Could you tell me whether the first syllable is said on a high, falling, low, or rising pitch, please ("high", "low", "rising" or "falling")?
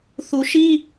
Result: low